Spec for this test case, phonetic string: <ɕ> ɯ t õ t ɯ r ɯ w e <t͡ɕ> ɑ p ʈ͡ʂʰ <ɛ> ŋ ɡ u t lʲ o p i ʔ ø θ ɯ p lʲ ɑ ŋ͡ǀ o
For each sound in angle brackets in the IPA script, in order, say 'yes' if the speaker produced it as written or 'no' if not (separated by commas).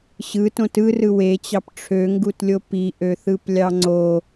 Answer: yes, yes, no